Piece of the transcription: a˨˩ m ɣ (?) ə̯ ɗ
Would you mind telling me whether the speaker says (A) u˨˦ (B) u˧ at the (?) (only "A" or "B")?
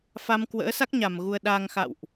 B